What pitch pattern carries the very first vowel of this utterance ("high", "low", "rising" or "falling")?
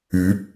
rising